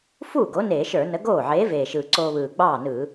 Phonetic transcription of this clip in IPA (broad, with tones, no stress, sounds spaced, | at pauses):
f uː˥˩ ɡ o˨˥ n eː˧˩˧ ʃ ə˞˧˩˧ n ə˨˥ ɡ oː˥˩ ʕ eː˨˥ v eː˨˩ ʃ ɯː˨˩ ǀ oː˧ β ɯː˨˩ ɡ͡b ɑː˥˩ n ɯː˧˩˧